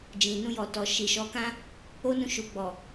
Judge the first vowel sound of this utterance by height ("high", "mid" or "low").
high